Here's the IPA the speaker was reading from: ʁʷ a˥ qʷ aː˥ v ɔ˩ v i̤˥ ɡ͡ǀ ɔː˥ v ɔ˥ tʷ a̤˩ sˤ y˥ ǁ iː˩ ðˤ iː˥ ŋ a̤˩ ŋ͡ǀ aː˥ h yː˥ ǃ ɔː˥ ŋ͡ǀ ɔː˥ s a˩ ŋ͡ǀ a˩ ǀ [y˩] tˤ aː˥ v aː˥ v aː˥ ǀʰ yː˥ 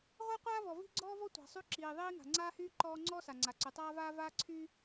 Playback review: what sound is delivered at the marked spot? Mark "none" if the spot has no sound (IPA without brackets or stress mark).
y˩